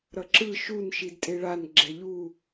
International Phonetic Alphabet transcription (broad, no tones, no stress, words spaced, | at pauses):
ɾʌǁɯ ʃun ʃidtʼeɭan ɡ͡ǁɛʎu